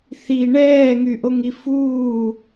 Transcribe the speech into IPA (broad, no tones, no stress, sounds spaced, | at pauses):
θ i ɳ ɛː ŋ y ʔ o ŋ i f uː